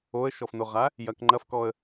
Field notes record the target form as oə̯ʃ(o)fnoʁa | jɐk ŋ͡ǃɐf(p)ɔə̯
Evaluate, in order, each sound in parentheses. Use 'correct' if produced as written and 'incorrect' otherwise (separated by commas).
incorrect, incorrect